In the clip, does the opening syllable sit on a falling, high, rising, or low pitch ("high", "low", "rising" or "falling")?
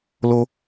high